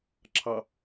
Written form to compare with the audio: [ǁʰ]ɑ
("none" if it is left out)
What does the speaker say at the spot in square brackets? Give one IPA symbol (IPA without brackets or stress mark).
ǁʰ